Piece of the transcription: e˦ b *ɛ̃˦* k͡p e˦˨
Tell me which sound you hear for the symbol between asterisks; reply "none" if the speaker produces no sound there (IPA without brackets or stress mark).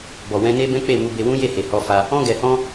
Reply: ɛ̃˦